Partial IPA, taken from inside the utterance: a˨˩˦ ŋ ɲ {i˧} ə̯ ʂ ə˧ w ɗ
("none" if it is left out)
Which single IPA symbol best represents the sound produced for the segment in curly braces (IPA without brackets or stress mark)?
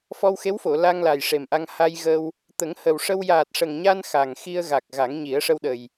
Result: i˨˩˦